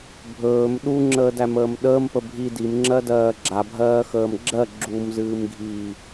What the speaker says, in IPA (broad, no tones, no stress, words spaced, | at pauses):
bʱɵːm ɗuŋ͡ǁəːdæməːm ɗəːmpə bʱi dimŋ͡ǁɜdɜː ɡ͡ǁabʱɜːxəːm ɡ͡ǁɜ ɡ͡ǁumzɨːmɡʱiː